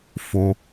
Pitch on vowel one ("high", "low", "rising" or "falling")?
low